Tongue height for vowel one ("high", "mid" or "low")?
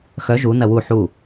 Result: mid